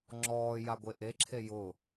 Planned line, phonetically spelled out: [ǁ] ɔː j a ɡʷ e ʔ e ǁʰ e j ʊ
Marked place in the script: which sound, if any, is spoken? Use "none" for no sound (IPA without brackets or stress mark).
ŋ͡ǁ